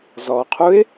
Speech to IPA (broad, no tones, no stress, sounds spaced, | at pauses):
z ɔ qʰ u ɪ̯